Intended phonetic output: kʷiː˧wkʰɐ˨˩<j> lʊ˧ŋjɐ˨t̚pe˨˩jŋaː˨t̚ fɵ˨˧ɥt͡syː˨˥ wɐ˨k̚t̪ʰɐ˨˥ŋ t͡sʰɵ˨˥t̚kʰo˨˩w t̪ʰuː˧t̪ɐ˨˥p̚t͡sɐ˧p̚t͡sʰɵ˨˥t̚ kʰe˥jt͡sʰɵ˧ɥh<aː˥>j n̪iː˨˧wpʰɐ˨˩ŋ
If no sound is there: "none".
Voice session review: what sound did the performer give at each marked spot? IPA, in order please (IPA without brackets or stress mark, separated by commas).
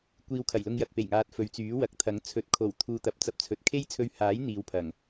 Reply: j, aː˨˥